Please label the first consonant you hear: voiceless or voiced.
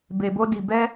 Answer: voiced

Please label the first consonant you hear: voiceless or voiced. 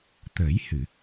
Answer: voiceless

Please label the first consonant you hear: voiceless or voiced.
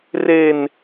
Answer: voiced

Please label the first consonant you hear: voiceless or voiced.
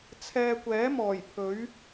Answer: voiceless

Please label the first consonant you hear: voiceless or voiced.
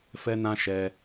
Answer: voiceless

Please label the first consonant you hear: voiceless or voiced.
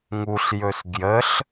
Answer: voiced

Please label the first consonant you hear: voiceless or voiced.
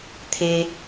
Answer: voiceless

